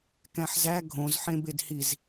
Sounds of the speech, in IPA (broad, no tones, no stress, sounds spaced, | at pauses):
k æ̃ ħ z æ ɡʱ õ z ħ ẽ b e d h i z